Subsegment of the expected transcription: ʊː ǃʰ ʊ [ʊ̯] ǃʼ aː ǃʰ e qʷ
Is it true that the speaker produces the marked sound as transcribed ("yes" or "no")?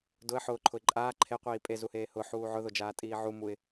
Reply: no